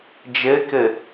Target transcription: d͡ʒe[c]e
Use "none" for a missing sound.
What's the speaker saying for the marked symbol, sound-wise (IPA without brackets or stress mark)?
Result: k